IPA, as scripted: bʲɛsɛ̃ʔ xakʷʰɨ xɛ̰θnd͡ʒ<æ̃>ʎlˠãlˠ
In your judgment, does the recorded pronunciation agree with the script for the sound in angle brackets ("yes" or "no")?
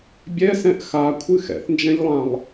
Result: no